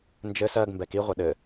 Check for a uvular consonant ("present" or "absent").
present